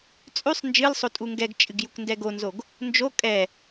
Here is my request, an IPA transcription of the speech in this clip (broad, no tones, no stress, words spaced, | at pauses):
t͡sʼʉsˤ nd͡ʒɨlsˤotʼu ŋɡɛɡt͡ʃʼɨɡ jukndɛɡonzoɡ | nd͡ʒo kʼɛ